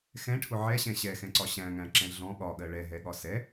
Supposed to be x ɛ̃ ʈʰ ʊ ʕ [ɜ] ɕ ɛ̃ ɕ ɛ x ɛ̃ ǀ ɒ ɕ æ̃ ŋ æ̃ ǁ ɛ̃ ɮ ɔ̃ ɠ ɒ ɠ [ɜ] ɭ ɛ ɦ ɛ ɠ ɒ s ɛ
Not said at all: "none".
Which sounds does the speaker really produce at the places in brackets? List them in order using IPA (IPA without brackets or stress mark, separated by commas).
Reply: ɛ, ɜ